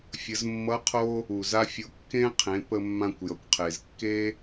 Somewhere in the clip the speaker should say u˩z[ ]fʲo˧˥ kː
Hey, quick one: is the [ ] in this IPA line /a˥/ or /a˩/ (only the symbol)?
a˥